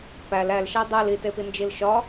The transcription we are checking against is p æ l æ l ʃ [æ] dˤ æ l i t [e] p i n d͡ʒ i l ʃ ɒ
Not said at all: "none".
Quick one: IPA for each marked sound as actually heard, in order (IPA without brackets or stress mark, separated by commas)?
æ, e